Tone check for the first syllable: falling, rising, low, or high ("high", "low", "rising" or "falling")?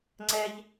high